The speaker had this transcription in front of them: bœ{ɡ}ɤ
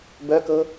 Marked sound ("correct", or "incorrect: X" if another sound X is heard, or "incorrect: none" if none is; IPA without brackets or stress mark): incorrect: k